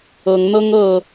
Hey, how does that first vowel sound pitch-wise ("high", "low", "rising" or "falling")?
rising